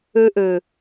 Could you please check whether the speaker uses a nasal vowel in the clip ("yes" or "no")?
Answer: no